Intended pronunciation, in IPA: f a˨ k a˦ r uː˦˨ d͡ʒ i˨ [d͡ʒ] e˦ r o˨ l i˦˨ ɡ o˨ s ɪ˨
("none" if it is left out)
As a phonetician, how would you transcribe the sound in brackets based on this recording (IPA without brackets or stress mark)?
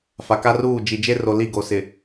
d͡ʒ